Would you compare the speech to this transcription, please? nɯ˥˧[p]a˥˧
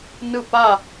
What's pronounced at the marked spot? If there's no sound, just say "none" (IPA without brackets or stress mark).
p